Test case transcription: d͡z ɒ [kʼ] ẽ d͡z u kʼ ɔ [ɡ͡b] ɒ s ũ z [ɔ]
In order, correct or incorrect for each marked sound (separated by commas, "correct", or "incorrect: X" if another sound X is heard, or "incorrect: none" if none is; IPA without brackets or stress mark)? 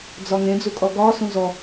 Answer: incorrect: ŋ, incorrect: ɡ, correct